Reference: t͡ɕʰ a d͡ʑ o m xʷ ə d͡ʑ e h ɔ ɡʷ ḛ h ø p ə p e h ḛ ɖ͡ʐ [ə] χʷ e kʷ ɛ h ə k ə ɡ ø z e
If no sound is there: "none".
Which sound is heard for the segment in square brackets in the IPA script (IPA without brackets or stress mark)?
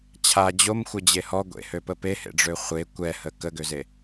ø